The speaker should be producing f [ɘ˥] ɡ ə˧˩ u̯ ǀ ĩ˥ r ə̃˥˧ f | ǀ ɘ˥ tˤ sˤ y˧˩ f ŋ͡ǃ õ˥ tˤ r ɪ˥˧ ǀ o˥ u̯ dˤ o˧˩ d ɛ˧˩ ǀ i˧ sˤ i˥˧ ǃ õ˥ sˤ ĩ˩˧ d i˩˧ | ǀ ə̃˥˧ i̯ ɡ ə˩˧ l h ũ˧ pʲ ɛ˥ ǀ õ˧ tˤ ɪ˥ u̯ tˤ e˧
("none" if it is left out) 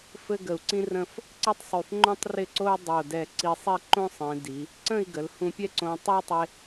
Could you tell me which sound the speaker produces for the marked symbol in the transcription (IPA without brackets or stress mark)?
ɘ˥